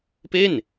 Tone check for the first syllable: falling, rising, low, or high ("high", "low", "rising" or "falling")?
falling